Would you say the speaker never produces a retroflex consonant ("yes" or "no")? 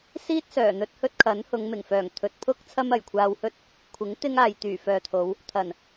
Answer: yes